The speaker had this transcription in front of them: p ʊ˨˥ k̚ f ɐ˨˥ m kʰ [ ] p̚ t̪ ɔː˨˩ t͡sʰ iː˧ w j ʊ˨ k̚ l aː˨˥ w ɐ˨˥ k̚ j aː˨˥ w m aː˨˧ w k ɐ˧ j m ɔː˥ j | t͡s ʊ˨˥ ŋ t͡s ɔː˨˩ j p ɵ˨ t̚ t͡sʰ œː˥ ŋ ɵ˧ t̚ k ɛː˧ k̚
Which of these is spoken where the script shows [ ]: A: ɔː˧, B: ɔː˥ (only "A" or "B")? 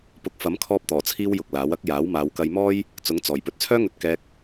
A